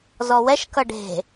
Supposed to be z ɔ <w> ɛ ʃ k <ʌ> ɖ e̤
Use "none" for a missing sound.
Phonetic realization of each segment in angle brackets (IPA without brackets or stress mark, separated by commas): w, ʌ